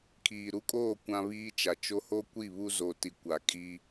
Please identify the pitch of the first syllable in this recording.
low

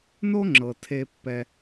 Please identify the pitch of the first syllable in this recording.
high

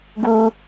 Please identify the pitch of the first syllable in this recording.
low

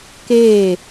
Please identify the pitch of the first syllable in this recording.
falling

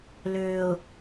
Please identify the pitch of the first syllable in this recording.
low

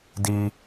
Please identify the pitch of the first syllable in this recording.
high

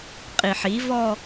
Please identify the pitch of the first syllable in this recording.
low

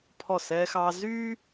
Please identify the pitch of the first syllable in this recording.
falling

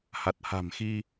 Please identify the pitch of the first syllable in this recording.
low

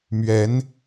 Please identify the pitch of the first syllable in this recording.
rising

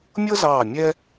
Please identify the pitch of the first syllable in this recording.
high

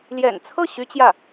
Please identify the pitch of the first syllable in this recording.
low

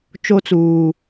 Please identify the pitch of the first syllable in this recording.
high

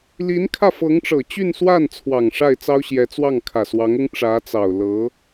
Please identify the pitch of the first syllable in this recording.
rising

